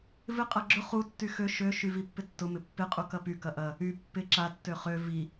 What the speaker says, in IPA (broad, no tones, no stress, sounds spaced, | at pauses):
v ɪ qʼ ɐ ɡ͡ǁ ʊ χ u tː y x ø ʃ ø ʃ y v i pː ɪ tː ʊ m ɪ pː ɪ qʼ u k ɐ p y k ɐ ʔ ɐ | y pː ɪ ǁ a tː ø χ ø v i